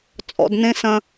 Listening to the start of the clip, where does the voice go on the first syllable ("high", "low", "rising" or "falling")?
low